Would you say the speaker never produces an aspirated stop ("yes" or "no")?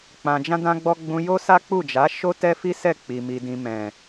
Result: yes